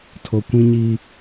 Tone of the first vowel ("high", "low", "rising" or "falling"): low